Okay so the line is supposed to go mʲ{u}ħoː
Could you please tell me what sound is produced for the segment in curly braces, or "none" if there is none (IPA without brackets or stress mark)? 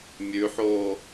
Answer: ʉ